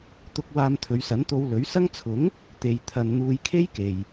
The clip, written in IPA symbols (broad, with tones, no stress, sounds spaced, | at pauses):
t̪ ʊ˧ k̚ w aː˧ m t̪ʰ ɵ˨˧ ɥ s ɐ˨˥ n t̪ o˧ w l ɵ˨˥ ɥ s ɐ˥ ŋ t͡sʰ ʊ˨˥ ŋ | t̪ e˧ j t̪ʰ ɐ˧ n n̪ uː˧ j kʰ e˥ j k e˨ j